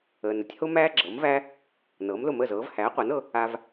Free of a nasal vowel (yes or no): yes